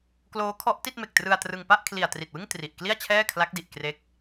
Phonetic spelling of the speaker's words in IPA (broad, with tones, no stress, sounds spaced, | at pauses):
k l oː˦˥ kʰ ɔ˦˥ ʔ t i˥˩ t̚ m e˨˩ k̚ t r ɯ˧ a̯ t r ɯ˧ ŋ p a˥˩ ʔ kʰ l i˨˩ a̯ t r i˨˩ t̚ w ɯ˥˩ ŋ t r i˨˩ ʔ k l i˥˩ a̯ t͡ɕʰ ɛː˥˩ kʰ l a˦˥ k̚ d i˨˩ ʔ k r e˦˥ k̚